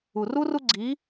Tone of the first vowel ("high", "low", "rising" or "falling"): low